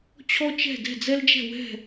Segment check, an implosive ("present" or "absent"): absent